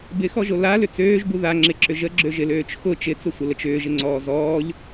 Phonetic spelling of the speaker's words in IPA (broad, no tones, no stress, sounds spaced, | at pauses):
b ɪ x ɔ ʒ o l a l ʏ t͡s øː ʒ b u ð a ŋ͡ǁ ɪ ǁ ʏ ʒ ə ɡ͡ǁ ø ʒ ɪ l øː t͡ʃ x ʊ t͡ʃ ɪ t͡s ʊ sʷ ə l ə t͡ʃ ʏː ʒ ɪ ŋ͡ǀ ɔː z ɔː ʎ